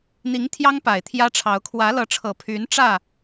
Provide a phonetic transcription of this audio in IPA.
n̪ i˨˦ ŋ t̪ʰ j ɑ˦ ŋ p a˨˩ ɪ̯ t̪ʰ j ä˦ ʈ͡ʂʰ ɑ˨˦ ʊ̯ kʰ w ä˨˦ l ɤ˨˦ ʈ͡ʂʰ ɤ˨˩ pʰ y˨˦ n ʈ͡ʂ ä˥˨

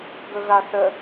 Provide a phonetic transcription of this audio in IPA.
ɡ ɵ ɣ a θ ə

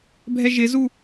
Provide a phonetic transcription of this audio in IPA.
bʱ ɛ ʒ ɪ z u

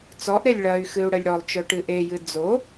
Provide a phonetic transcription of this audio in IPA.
t͡s ɔ ʔ ɾ e lʲ ɭ ɐ y̯ x ɨ u̯ ɽ ə lʲ ɽ ɔ lˠ t͡ʃ œ ʈ ɨ ʔ e j ɨ d͡z o

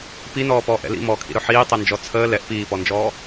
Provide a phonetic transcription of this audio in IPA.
p i n ɔː p ɔː ʔ ɛ̰ l ḭ m ɔː kʰ ḭ ɾ ɵ ħ iː tˤ ɛ n d͡ʒ ɔ t͡sʰ əː l ɛ ʔ p iː p ɔ n d͡ʒ ɔː

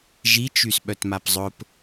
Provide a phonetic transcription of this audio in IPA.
ʒ i t͡ʃ y s ɓ œ t m a p zˤ ʊ p

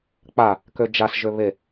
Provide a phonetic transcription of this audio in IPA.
k͡p a | k ø d͡ʒ a s ʒ ø β e

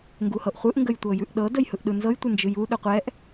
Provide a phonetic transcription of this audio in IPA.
ŋ ɡ u h ɤ ʔ χʷ ɯ ʔ ŋ ɡ ə j tʷ ɤ j ʉ ʔ ɗ ɤ d ə j h ɯ ʔ ɗ ɯ n z ɤ j tʷ ɯ n d͡ʒ ɯ j u ɗ ɯ qʷ ɛ ʔ

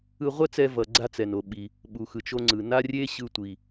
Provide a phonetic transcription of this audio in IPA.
ɯ˧ ʁʷ ɛ˥ t͡s ɛ˧ v ʌ˩ ɡ͡ǀ a˧ t͡s ɛ˩ n o˩ ɓ i˩ | ɓ u˩ x ɯ˩ t͡ʃ o˧ ŋ͡ǀ ɯ˩ n a˥ rʲ e˥ ɕ ɯ˧ tʷ i˩

